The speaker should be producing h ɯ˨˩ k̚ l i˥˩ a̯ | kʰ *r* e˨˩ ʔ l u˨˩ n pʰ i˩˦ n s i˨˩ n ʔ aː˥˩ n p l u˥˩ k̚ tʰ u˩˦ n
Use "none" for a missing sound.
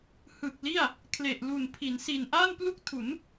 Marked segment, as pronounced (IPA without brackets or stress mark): l